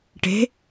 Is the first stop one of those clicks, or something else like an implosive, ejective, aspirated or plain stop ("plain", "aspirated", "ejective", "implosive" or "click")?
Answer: plain